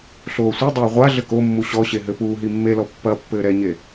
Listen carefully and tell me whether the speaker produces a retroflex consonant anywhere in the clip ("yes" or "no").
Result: no